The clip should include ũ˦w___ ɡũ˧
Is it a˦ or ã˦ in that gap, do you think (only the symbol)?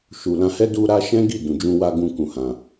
a˦